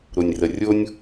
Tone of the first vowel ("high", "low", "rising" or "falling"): low